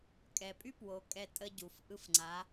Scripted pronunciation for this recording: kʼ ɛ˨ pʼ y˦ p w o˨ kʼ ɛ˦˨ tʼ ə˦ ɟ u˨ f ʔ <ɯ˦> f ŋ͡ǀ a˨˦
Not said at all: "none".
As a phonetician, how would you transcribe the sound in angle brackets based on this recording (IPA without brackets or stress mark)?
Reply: ɯ˦